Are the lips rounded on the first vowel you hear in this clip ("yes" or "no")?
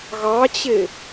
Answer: no